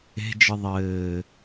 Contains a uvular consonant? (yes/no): no